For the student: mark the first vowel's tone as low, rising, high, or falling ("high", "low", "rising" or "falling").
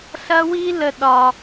high